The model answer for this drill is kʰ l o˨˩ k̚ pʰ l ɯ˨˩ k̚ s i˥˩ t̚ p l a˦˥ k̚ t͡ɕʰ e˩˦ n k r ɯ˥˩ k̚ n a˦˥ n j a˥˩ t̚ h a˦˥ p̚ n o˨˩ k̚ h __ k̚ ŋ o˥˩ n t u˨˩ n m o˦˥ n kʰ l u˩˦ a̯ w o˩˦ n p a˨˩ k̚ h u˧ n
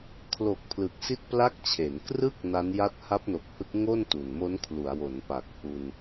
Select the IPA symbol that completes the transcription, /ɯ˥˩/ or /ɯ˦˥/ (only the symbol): ɯ˦˥